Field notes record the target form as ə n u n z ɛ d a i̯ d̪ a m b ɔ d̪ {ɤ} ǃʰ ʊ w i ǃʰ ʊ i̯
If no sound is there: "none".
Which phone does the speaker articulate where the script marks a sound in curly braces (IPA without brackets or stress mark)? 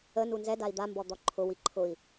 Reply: ɔ